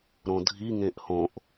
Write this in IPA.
ɾõdʱi ŋẽʔhõʔ

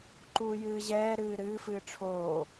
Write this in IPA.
ǃuːjɨːʑɛː ɾɨːɾɨː fɨːʈ͡ʂʰoː

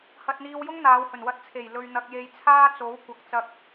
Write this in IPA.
hɐ˧t̚n̪iː˧wjʊ˥ŋ n̪aː˨˧whɵ˨˩nwɐ˧t̚ t͡sʰe˨˩jlɵ˨ɥ n̪ɐ˧k̚je˧jt͡sʰaː˥t͡so˨˥w kʷɐ˨k̚t͡sɐ˧k̚

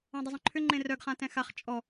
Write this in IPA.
ɔ̃dˤʏzˤœ̃ǃʰʏ ŋ͡ǃẽrœɡ χãtɛ̃xaχ t͡ʃʼɔ

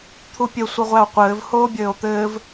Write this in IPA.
t̪ʰupʲɘ sʷɘʁʷæo̯qʷɘːv hoːbʲɘːo̯t̪ɘːv

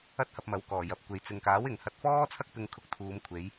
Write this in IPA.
ɐ˥t̚hɐ˧p̚mɐ˨˥wkɔː˨˩ jɐ˨p̚kʷe˨˧j t͡sɪ˨ŋkaː˨˥w ɪ˨ŋhɐ˧t̚fɔː˥t͡sʰɐ˥k̚ pɪ˧ŋkʰʊ˧k̚t̪ʰuː˨˧mkʷʰe˨˧j

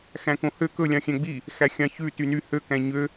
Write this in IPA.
xæ̃kõhø kɵ lʲɑ̃xʲæ̃ɡ͡bi | xæxʲɑ̃çʉ tyny hø kæ̃ɲø

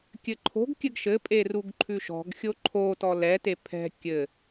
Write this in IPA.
kʲɘǃʰo̤ɡkʲɘɡ ʃɘpʼe ruɡǃʰʉʃɔ̤ɡxʲo ǃʰotɔ lɛte pʰɛ̤ kʲɘ

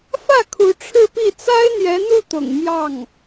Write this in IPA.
fä˥˩ kʰu˧˥ʈ͡ʂʰɻ̩˥˧pi˥˩ t͡sa˥ɪ̯n̪jɛ˧˥n̪u˥˩t̪ʊ̰˨˩ŋ mjɑ˥˩ŋ

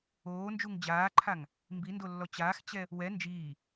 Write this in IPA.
oːnd͡ʒuŋ d͡ʑaːǃʰaŋ | mbindolːɔ t͡ɕaːxt͡ɕɛ | wɛ nd͡ʒiː

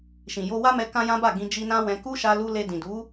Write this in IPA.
ʃĩ˨jo˧wa˦mɛ˧ kã˦jã˦ba˦˨ ɡĩ˧d͡ʒi˧nã˦wɛ̃˧ ku˦ʃa˧lu˧ le˧dĩ˨du˨˦

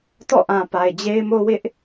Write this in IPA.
tɔ̰˦˨ʔã˨ pa˨ɪ̯d͡ʑe˦ɪ̯mo˦ wɪ˦ʔ

